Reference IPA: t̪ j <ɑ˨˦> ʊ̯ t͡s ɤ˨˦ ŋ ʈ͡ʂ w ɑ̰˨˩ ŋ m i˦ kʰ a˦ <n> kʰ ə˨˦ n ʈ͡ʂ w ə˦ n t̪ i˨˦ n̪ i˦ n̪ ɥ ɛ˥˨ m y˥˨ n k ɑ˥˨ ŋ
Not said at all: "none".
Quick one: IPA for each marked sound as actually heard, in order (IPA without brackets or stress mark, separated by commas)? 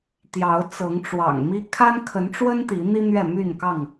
ɑ˨˦, n